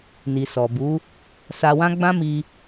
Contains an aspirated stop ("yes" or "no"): no